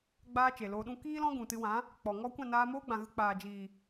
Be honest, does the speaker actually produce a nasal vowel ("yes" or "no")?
yes